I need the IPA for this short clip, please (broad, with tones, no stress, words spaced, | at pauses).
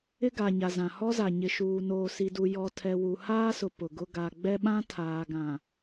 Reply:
ɪ˦ɡa˨ɲa˨zã˨ hɔ˦za˨ ɲɪ˨ʃuː˨ noː˨si˨du˨ jɔ˨tʰɛ˨ wu˨ haː˦sʊ˨ pʊ˨ɡʊ˦ ɡa˨ ɡ͡bɛ˦ɓã˦ tʰaː˨ɡã˨